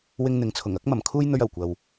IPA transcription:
w ɪ˧ ŋ n̪ ɪ˨ ŋ t͡sʰ ʊ˨˩ ŋ ɐ˧ k̚ m ɐ˨˩ m kʰ uː˥ j n̪ ɵ˧ ɥ ɐ˨˩ w kʷ ɐ˨ w

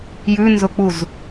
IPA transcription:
j ʉ n z ʊ k͡p u z

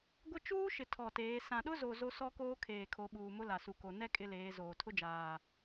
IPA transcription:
ɡʷ ɪ˦ t͡ʃ uː˦ ʃ ɪ˨ tʰ ɔ˨ t eː˨˦ s ã˨ ɗ ʊ˦ z o˨ z o˦ s ɔ˦ k oː˦ kʰ eː˨ kʰ o˨˦ ɓ uː˨ m ʊ˦ l a˨ s u˨ k o˨ n ɛ˦ kʼ ɪ˦ l eː˨˦ z oː˨ tʰ ʊ˦ d͡ʒ aː˨

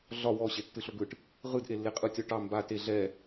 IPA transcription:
ɮ ɒ w ɔ ɕ e tː ɯ ɬ o ɡ ɯ ʈ | ʁ ɯ d ʔ e lː e qʼ ɯ tʲ ɔ ʈ ɑ m b a t e ɮ ɛ

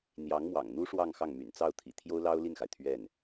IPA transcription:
n̪ j ɑ˧˥ ŋ m w ɑ̰˨˩ ŋ n̪ u˥ ʂ w ɑ˥˧ ŋ x ɑ˥˩ ŋ m y̰˨˩ n t͡s ɑ˥˩ ʊ̯ t̪ʰ ḭ˨˩ t̪ʰ j o˥ ʊ̯ l ɑ˥ ʊ̯ l i˥˩ n x a˩ ɪ̯ t̪ʰ ɥ ɛ˥˩ n

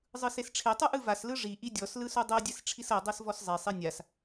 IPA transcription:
zˤ ɯ s e s ʈ͡ʂʰ e tˤ ɯ ʔ ɯ v a s l ɯ ʐ i ʔ i dʲ ɔ s l ɯ s u dˤ ɤ dʲ ɛ s ʈ͡ʂʰ i s ɤ dˤ ɤ s v ɔ s zˤ e sˤ i nʲ a s

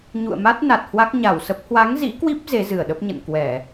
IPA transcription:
ɲ ṵ˧˨ ə̯ m a˦˥ t̚ n a˨˩ t̚ h w a˦˥ k̚ ɲ a˧˩ w s ə˦˥ p̚ h w a˨˦ ŋ z ḭ˧˥ k w i˦˥ p̚ z e˨˦ z ɨ˧˩ ə̯ ɗ ə˦˥ p̚ ɲ ə̰˧˨ n k w ɛ˧˩˨

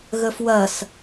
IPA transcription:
ɣ ə f w ɐ s

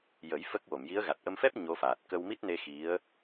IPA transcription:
j ə˨˩˦ j f ə˦˥ k̚ w o˨˩˨ m j i˧˥ ə̯ ɣ a˨˩ t̚ ʔ ə˧ m f ɛ˦˥ p̚ ɲ o˧˥ f aː˨˩ t̚ k ə˧ w m i˦˥ t̚ n e˧ x i˧˥ ə̯

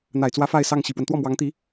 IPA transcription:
n̪ a˨˩ ɪ̯ t͡s w ä˧˥ f a˥˧ ɪ̯ s ɑ˥˩ ŋ ɕ i˨˩ p w ə˦ n t̪ w ɔ˥˩ m w ɑ˧˥ ŋ t̪ i˧˥

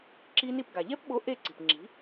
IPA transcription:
ǁ i˦˥ n i˥˨ p ɡ a˨ ʎ ɛ˦˥ p ɓ o˨˥ ʔ e˥˨ ǀ i̤˨ p ŋ͡ǁ i̤˨˥

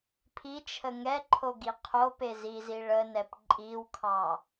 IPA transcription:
pʰ i t͡ʃʰ ə ŋ ɛ ǃʰ o ɡ i qʰ o p e z i z i ɭ ə n ɛ p ǃʼ i w kʰ ɑ

